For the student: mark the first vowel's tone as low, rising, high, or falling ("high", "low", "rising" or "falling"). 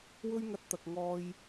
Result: high